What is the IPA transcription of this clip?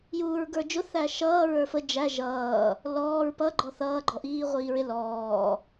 j uː ɹ ɡ ə˞ d͡ʒ ʊ θ æ ʃ ʌː ɹ ə˞ f ə d͡ʒ æ ʒ ʌː | l ɔː ɹ p ʌ ɡ͡ǃ ɔ θ ʌː ɡ͡ǃ ɔ ʔ iː ʁʷ iː ɹ ɪ l ɔː

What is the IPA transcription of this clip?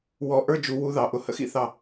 w ɔ˧˥ ʔ ə˞˥ d͡ʒ u˧˥ w u˧˥ ð ɑ˩˧˩ ʔ ʊ˥˩ h ə̰˥ x ḭ˥˩ θ ɑ˥˩

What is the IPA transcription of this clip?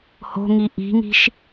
h o̤ ŋ i ʔ i̤ ŋ i̤ ʃ

